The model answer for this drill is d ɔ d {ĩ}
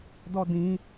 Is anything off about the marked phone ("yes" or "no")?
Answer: no